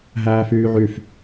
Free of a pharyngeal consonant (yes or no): no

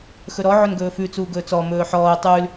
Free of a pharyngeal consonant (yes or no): no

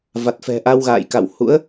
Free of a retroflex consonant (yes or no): yes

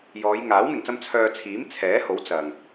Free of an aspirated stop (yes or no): no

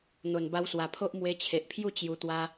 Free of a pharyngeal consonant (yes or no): yes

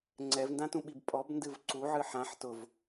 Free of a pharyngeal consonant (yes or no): no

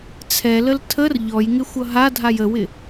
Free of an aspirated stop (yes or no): no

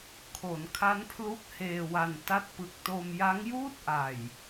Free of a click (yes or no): yes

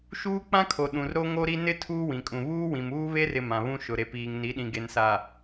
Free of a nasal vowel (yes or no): no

